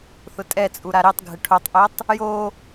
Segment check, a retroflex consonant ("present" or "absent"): present